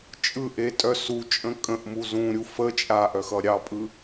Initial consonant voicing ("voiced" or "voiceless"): voiceless